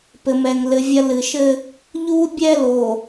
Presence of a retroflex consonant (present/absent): absent